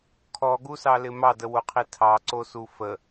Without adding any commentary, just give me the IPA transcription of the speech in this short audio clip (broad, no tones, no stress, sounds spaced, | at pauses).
kʰ ɔ ɡ u s ɑ l ɪ m ɑ d ə w o qʰ i tʰ ɑ ǀ o s u f ə